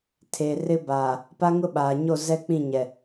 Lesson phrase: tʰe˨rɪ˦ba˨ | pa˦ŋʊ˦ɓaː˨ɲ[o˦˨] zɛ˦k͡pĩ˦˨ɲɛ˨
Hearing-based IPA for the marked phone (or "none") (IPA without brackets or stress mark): o˦˨